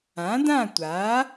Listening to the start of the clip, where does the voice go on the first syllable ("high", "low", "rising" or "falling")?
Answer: rising